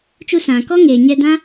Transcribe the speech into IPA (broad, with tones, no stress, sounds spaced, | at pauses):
t͡ʃ u˧ s ã˨ k ɔ˦ ŋ eː˨ ɲ ɛ˧ d ã˦